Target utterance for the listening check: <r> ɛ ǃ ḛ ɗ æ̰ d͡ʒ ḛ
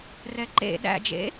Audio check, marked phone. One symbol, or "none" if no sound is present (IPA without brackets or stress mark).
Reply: r